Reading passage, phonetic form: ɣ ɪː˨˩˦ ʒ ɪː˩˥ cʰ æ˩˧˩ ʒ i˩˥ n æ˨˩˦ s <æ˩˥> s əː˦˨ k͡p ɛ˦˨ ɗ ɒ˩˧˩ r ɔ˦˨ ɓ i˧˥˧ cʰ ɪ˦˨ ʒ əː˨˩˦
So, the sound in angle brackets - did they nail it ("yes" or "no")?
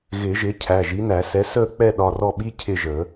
no